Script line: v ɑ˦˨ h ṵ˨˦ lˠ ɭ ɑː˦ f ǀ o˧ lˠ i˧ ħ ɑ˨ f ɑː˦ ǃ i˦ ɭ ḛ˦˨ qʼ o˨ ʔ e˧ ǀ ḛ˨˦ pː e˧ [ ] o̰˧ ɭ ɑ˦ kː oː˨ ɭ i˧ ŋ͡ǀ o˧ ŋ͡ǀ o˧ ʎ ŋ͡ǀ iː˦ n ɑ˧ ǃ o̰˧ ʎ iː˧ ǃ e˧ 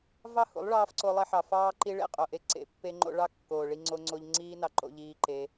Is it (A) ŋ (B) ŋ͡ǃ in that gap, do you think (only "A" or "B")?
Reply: B